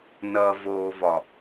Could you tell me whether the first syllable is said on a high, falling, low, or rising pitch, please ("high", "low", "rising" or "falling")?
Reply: low